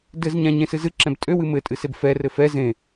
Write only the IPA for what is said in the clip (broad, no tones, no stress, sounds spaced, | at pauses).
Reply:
d ɘ z ɲ ã ɲ ẽ s ɨ z ɨ ǁ ɛ̃ b tʼ ø w ɨ m ɘ tʼ ɨ s e b f ɛ r ɘ f ɛ z ẽ